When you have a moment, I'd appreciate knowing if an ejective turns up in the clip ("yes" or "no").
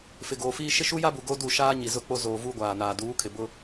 no